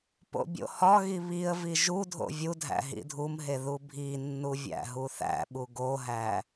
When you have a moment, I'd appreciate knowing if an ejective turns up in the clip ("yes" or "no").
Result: no